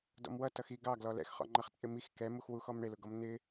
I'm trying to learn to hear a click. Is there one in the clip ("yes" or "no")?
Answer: yes